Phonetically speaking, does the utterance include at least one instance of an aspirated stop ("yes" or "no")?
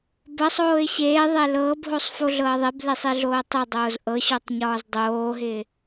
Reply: no